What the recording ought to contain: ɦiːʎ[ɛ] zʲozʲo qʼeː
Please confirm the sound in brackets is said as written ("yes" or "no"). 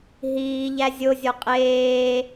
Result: no